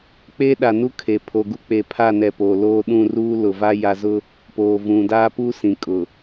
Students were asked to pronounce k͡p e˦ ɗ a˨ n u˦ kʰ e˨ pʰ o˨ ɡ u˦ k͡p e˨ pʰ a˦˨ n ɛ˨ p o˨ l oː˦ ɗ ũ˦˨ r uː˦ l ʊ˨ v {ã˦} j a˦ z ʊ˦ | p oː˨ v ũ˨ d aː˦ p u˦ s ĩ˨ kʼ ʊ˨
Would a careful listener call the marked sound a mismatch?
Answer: yes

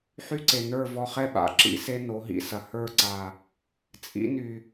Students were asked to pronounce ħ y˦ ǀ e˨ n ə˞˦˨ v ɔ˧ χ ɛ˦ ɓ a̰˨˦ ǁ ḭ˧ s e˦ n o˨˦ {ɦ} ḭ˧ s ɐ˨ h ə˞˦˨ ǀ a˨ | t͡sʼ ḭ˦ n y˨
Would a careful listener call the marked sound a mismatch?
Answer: no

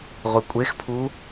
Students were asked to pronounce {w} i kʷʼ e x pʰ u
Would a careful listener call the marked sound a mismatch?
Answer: yes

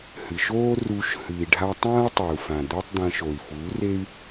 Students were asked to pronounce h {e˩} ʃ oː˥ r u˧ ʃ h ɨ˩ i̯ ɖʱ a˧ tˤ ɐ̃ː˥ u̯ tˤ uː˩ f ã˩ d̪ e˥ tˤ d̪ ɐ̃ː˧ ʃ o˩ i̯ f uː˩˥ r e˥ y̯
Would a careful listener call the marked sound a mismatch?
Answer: yes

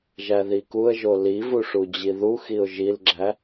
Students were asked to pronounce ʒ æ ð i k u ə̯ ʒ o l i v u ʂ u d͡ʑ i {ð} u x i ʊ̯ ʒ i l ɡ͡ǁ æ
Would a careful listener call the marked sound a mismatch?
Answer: no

